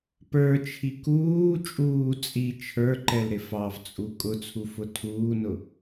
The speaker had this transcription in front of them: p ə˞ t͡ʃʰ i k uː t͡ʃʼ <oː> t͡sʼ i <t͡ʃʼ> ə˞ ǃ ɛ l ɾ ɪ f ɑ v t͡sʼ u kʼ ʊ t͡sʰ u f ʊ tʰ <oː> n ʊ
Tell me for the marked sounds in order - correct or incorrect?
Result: incorrect: uː, incorrect: t͡ʃʰ, incorrect: uː

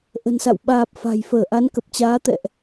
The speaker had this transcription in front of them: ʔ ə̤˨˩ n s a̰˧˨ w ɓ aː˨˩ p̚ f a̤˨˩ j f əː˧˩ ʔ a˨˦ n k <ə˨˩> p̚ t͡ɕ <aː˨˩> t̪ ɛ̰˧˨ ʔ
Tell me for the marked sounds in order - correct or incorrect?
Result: correct, incorrect: aː˨˦

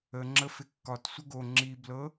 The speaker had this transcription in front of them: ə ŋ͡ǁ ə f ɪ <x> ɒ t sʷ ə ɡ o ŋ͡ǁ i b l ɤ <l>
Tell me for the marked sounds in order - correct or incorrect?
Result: incorrect: kː, incorrect: none

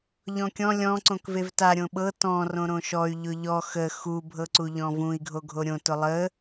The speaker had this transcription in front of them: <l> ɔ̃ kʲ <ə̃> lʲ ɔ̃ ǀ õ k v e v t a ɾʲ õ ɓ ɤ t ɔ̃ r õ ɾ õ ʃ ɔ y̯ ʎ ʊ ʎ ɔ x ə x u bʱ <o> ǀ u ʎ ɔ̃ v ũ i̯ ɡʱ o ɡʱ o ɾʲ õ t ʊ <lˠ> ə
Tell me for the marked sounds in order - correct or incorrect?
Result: incorrect: ʎ, incorrect: ɔ̃, incorrect: ɤ, correct

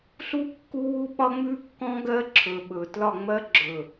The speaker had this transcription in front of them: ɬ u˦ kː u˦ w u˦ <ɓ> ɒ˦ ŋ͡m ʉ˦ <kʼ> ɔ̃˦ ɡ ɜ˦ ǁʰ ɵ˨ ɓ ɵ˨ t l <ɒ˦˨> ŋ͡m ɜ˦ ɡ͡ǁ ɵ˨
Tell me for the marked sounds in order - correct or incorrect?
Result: correct, incorrect: kː, correct

